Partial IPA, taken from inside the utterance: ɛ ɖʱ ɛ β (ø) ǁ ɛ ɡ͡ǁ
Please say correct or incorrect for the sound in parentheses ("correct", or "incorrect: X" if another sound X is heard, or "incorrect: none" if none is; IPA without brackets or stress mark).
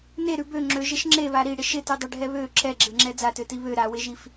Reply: correct